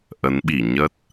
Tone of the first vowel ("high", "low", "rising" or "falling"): rising